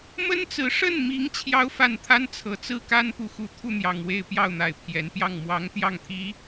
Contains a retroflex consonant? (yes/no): yes